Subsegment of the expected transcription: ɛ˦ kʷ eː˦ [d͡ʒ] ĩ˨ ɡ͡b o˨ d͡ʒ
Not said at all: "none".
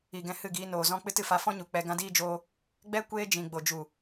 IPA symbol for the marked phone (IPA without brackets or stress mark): d͡ʒ